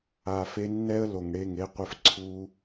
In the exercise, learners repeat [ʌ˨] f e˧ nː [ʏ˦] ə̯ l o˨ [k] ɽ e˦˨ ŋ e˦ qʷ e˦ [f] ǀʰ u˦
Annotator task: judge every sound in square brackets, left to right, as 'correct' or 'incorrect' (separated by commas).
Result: incorrect, incorrect, incorrect, correct